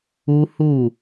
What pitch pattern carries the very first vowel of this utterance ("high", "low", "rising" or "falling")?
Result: high